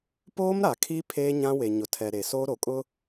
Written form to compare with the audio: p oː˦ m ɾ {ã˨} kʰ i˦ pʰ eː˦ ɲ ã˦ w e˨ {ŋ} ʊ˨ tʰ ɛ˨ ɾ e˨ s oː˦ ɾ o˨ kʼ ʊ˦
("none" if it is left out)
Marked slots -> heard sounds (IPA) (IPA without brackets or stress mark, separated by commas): a˨, ɲ